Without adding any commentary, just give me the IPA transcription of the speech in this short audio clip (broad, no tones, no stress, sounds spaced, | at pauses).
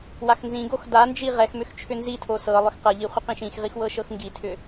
w a x n z ĩ ɡ o x d a n d͡ʒ i ʁ ɛ x m ʏ x t͡ʃʰ ʏ n z i tʰ o s ɤ lˠ ʏ x q ɤ ʎ i χʷ ə q ĩ ʃ ĩ x ʁ i x w ɤ ʃ ɤ x ŋ ɡ i tʰ ʏ